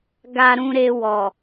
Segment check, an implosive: absent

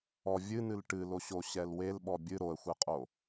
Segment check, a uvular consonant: present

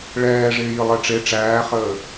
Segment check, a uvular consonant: present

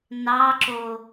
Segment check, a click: present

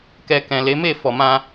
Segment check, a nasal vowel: present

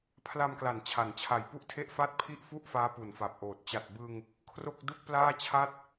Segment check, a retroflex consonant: absent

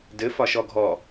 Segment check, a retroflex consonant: absent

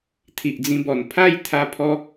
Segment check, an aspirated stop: present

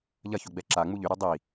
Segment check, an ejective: absent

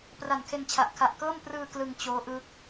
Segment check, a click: absent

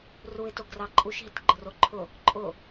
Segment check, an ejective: present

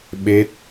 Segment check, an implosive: present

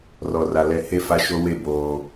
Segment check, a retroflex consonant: absent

